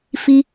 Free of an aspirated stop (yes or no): yes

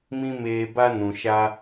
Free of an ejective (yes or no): yes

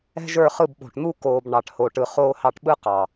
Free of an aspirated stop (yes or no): yes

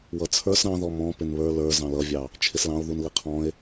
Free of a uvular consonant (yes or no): no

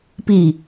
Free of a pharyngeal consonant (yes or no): yes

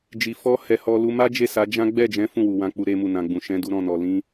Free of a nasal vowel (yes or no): no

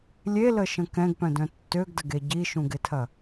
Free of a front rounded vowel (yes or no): no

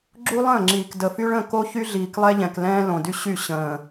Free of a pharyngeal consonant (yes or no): yes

